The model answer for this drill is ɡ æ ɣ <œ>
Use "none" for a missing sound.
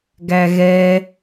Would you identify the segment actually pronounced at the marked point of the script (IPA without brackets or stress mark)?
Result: ɛ